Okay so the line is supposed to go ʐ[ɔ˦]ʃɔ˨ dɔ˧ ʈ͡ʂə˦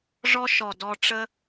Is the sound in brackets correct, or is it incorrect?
correct